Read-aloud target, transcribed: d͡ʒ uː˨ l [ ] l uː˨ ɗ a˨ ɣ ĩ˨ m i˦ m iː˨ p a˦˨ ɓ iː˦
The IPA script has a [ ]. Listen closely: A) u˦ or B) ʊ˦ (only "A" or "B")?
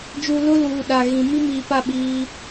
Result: B